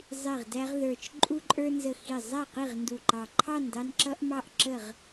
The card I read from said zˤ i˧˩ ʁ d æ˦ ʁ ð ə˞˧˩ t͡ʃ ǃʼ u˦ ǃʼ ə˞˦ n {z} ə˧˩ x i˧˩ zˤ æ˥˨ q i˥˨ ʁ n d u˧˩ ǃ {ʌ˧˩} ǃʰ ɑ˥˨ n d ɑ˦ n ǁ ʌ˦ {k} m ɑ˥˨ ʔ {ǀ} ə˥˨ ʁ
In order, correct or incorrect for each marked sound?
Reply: correct, incorrect: ɑ˧˩, incorrect: ʔ, incorrect: ǁ

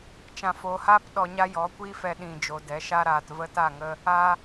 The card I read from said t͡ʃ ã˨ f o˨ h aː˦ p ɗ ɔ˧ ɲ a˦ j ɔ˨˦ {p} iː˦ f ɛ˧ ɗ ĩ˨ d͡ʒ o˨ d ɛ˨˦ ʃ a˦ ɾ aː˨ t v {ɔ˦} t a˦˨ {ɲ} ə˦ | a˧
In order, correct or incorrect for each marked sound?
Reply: incorrect: kʷ, incorrect: ə˦, incorrect: ŋ

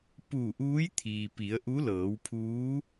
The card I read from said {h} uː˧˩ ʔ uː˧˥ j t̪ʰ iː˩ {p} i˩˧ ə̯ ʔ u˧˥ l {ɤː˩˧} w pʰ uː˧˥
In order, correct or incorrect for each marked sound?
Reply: incorrect: p, correct, correct

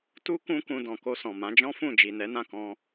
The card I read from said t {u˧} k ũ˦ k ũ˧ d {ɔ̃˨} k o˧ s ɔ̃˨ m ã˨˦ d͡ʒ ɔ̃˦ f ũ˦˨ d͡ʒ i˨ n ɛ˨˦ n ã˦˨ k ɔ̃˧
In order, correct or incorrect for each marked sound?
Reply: incorrect: u˦, correct

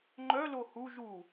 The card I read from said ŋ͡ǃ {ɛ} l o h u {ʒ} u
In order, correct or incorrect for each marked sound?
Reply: incorrect: œ, correct

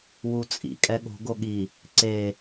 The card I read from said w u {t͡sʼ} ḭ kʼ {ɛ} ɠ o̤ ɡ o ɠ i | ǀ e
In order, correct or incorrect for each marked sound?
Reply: correct, correct

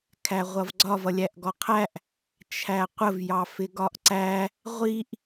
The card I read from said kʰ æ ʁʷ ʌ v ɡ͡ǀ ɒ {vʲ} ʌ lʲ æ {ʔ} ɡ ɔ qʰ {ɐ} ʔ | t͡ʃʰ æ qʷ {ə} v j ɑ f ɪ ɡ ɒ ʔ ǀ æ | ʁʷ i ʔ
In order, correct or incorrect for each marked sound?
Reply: incorrect: v, correct, incorrect: æ, correct

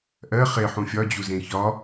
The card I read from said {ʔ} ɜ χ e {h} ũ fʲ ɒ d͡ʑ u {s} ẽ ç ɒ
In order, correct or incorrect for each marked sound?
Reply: correct, incorrect: ħ, incorrect: z

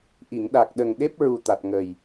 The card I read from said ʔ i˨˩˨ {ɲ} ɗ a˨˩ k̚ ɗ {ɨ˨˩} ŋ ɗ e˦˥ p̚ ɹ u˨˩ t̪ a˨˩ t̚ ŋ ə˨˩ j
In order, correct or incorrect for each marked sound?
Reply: incorrect: ŋ, incorrect: ə˨˩

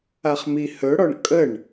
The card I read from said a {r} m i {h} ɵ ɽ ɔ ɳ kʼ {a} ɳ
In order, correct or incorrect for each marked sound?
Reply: incorrect: χ, correct, incorrect: ə

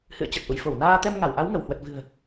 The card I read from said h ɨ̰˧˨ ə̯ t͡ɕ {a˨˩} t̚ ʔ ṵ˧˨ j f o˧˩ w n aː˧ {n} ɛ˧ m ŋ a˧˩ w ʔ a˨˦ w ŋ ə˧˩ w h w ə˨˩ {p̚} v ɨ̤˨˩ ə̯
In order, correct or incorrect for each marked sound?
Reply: incorrect: ə˨˩, incorrect: t̪, incorrect: t̚

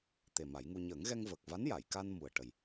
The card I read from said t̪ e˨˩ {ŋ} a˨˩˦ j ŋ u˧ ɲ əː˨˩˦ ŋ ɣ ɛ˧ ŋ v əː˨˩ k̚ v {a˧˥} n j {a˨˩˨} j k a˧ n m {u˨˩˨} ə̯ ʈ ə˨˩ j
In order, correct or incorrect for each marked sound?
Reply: incorrect: m, correct, correct, incorrect: u˨˩

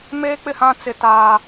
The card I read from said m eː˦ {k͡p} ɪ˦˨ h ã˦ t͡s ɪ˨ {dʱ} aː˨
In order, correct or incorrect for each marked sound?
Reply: correct, incorrect: t

